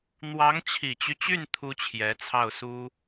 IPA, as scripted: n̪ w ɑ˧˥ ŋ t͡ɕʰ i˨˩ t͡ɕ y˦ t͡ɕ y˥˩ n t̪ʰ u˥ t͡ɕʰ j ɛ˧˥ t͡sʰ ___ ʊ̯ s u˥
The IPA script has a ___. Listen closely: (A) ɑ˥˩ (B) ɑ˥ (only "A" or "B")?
A